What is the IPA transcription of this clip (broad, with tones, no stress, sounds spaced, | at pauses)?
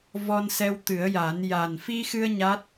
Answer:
v ɔ˧ n s ɛ˧ w t̪ ɨ˨˩˦ ə̯ j a˨˩˦ n j a˨˩ n f i˧ x ɨ˧ ə̯ ɲ a˦˥ t̚